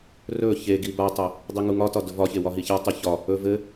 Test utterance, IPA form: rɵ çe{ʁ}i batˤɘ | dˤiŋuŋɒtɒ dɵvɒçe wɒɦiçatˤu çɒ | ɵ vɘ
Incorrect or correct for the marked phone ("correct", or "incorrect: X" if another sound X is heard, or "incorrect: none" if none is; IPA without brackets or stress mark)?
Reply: incorrect: ɡ